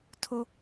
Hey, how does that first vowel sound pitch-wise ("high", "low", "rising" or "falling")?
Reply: high